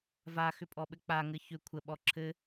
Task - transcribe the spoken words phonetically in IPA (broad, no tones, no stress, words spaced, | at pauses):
vaxʏpʼɔɓɘ k͡paŋɘ çʏ kʷʰəɓɔ ǁʰɘ